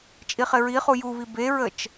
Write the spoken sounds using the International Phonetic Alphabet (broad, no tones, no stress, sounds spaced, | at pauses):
t͡ʃʼ i χ ɪ ɹ i χ u j u β i b e ɹ ə t͡ʃ